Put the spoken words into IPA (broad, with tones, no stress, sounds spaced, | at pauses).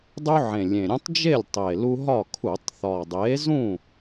dˤ u˦ ʕ ẽ˨˩ lʲ ẽ˨˩ ɾʲ ũ˦ tˤ d͡ʒ e˥˨ lʲ tˤ e˨˩ l u˦ ɦ ɒ˥˨ kʰ u˧˩˧ tˤ θ ɒ˨˩ dˤ e˨˥ z ũ˥˨